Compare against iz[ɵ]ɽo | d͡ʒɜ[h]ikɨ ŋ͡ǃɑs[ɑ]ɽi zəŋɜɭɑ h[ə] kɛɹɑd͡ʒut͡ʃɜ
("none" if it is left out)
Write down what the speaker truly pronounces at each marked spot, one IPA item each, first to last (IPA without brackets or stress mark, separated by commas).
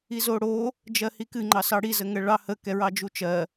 o, h, ɑ, ə